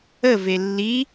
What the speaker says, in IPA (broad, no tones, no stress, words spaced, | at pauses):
əve lːi